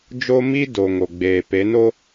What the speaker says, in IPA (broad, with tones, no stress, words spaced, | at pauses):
d͡ʒo˦mi˦do˨ ŋo˨ɡ͡beː˨pe˨˦no˦